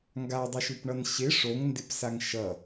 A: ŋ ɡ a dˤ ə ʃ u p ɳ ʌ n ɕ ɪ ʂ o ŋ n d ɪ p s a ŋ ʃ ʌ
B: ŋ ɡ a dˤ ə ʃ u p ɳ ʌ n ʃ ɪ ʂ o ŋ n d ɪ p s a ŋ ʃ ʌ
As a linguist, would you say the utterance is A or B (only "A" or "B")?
A